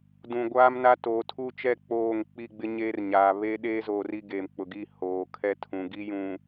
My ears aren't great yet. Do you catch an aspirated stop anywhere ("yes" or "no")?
yes